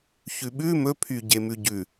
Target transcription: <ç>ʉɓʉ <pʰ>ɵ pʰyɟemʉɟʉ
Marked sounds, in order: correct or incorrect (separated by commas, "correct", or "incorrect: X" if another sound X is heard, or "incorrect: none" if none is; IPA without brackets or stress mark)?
correct, incorrect: m